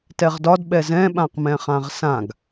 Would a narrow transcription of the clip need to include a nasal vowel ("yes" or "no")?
yes